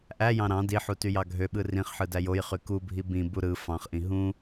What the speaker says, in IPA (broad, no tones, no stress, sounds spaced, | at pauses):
ʔ æ j ɑ̃ ɾ ɑ̃ d i ħ u t y j ɑ ɡʱ ø ɓ ɯ r ĩ χ ħ ɯ d æ j o j χ y k u bʱ i b ĩ b u ɾ ɯ f ɑ̃ χ ʔ ĩ ɦ ũ